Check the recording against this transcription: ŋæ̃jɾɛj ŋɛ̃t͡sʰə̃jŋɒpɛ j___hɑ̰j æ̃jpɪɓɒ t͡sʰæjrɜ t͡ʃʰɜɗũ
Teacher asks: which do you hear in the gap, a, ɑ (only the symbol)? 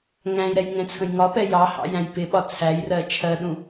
ɑ